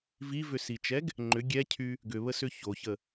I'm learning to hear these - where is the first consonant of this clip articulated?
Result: lips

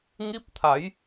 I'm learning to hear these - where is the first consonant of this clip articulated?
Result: velum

